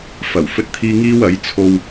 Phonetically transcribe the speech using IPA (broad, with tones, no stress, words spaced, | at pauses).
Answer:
fɐ˨˩w fɵ˥t̚t̪ʰiː˥ ŋiː˥wɐ˨˥jt͡sʰo˧w